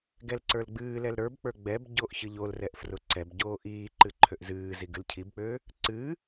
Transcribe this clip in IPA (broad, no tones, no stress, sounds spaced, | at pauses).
ɡ ɛ l ǀ ə˞ l ɡ͡b ɨː l ɛ l ɾ ə˞ b k͡p ə˞ ɡ͡b ɛ b ɟ o ʔ ç ɨ ʎ o l r ɛ ʔ f r ʊ ǀ ɛ b ɟ oː ʔ iː ǃ ɨ ǃʰ ø ʔ z ɨː z i ɡ ɨ l cʰ i b k͡p øː | ǀ ɨː